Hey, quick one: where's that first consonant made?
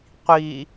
uvula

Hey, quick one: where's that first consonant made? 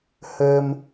throat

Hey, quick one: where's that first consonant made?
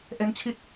throat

